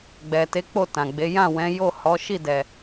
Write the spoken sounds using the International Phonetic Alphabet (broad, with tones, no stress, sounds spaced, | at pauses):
ɡ͡b ɛ˨ t e˨˦ k͡p o˦˨ t ã˨ ɡ͡b e˨˦ j ã˦˨ w ɛ̃˨˦ j o˦˨ h ɔ˨˦ ʃ i˦˨ d ɛ˨